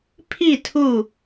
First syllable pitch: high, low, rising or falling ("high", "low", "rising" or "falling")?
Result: falling